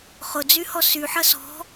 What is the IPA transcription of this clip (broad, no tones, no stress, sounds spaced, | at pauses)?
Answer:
χ ʊ d͡z y h ɔ s y ħ ɐ s ɔ̤